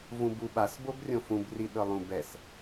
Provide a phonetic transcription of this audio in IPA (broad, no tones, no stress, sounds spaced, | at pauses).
v ũ b u ɓ a s b o b rʲ õ f ũ b r i ɗ ɤ lˠ ũ b ɛ s